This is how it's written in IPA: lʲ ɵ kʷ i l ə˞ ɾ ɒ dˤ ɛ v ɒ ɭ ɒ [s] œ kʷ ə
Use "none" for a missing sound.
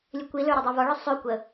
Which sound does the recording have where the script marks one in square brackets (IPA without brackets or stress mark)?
sˤ